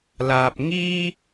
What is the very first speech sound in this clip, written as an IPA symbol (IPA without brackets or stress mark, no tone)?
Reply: l